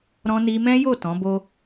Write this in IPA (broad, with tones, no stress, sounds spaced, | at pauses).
ɾ ɔ̃˧ n i˧ m ɛ̃˦ j o˦˨ t ɔ̃˨˦ b o˦